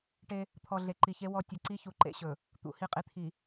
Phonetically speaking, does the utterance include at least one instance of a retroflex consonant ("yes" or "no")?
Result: yes